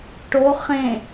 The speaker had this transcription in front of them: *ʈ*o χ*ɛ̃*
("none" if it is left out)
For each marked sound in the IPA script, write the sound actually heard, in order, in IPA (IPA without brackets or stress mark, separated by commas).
ʈ, ẽ